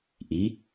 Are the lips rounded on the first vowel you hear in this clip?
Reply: no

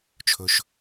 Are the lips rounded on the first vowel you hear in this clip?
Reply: yes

